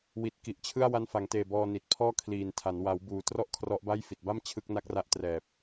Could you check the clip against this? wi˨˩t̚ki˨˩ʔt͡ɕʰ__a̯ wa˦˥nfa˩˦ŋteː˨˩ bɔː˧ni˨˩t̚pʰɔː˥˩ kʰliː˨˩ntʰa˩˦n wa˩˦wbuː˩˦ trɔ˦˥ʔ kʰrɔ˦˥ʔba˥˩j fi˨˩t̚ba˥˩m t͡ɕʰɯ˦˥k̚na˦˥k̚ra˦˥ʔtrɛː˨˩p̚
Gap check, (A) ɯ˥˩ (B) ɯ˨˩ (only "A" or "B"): A